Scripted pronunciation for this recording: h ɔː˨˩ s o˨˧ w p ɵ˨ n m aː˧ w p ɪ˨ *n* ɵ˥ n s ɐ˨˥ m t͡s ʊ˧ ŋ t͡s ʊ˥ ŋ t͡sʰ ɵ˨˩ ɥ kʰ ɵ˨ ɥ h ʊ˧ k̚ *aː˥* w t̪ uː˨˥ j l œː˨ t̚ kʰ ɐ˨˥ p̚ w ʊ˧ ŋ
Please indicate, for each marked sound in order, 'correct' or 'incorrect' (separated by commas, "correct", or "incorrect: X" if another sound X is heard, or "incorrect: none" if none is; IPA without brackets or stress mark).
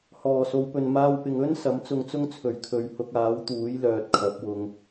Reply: incorrect: ŋ, incorrect: aː˨˥